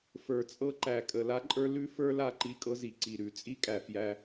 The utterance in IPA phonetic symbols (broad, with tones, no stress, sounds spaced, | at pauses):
f ə˞˨ t͡sʼ ɤ˦ ǃ æ˨ kʼ ə˨ l a˦ ǃʼ ə˞˦ l ʉ˦ f ə˞˦ l a˦˨ ǃ i˦˨ kʼ ɤ˦ z i˨ ǀ i˨ ɾ ʉ˨ t͡sʼ i˦ kʼ æ˨ f j æ˦